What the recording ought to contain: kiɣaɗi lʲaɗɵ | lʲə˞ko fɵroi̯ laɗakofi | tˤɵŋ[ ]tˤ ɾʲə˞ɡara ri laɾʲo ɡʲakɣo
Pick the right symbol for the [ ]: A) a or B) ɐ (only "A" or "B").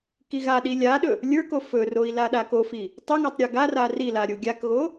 A